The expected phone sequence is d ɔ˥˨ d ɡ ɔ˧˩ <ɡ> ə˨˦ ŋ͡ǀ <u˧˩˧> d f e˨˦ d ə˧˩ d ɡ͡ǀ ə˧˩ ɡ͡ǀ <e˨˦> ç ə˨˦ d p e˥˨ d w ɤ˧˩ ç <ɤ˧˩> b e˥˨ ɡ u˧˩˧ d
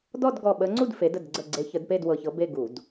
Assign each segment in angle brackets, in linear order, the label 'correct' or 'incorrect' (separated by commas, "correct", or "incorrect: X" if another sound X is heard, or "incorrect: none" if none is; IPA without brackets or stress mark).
incorrect: ɓ, incorrect: u˥˨, correct, incorrect: ɤ˨˦